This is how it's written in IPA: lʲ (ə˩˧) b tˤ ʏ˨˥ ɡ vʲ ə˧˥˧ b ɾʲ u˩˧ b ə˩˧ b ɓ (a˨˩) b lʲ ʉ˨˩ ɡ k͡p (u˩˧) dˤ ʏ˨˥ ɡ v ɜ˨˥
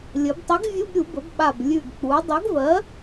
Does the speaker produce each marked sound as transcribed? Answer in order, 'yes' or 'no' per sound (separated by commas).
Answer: yes, yes, yes